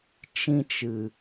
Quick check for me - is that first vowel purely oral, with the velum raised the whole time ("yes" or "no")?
no